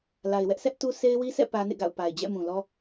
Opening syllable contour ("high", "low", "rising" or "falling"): low